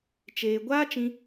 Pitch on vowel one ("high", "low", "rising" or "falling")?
low